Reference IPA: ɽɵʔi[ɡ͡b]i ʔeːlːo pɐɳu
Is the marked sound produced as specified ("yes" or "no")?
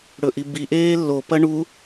no